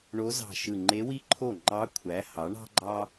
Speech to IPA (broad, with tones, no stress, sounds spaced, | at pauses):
ɳ o˧˥ z ɑ̤˧˩ ʃ ɯ˧˩ ŋ͡ǃ e˧˥ w i˥ ǃʰ o˥˩ ŋ͡ǃ ɑ˧˥ kʷʰ æ˩˥ h ɑ˩˥ ɳ ɑ̤˥ ɡ͡ǃ ɑ˥